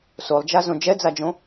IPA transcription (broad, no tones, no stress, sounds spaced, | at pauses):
s o lˠ d͡ʒ a z õ d͡ʒ ɛ d͡z a d͡ʒ õ